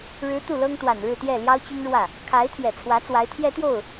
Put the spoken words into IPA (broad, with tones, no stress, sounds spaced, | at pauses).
ɻ ɻ̩˧˥ t̪ u˥˩ l ɤ˥ ŋ t̪ w a˨˩ n ɻ ɻ̩˥˧ t̪ j ɛ˥˩ l j ɑ˥ ʊ̯ t͡ɕ i˥ ŋ ɻ w ä˥˩ | kʰ a˧˥ ɪ̯ t̪ʰ j ɛ˨˩ t͡sʰ w ä˧˥ t͡s w a˧˥ ɪ̯ t̪ʰ j ɛ˥ t̪ j o˥˩ ʊ̯